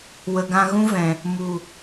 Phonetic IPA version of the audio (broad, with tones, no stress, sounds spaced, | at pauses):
w ə˨ ɡ ã˧ ɣ ũ˦ v ɛ̃˨ | m u˨